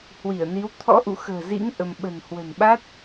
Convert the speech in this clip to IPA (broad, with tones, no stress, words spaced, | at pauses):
hwi˧˩ə̯ni˨˦w t̪ʰɔ̰˧˥ʔṵ˧˨xə̤ː˨˩zḭ˧˥ŋ ʔə˧m ɓə̤˨˩nhwə̤˨˩n ɓa˦˥t̚